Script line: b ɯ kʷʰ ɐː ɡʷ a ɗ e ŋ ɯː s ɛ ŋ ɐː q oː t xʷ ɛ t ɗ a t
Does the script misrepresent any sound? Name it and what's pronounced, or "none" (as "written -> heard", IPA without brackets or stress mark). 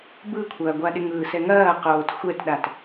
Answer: none